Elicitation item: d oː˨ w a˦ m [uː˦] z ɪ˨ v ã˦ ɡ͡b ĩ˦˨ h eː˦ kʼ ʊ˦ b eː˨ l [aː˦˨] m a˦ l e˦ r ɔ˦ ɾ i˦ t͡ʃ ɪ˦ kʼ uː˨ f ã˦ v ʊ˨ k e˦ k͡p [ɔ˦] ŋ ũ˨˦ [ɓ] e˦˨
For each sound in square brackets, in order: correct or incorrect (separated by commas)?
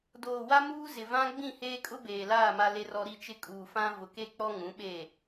correct, correct, correct, correct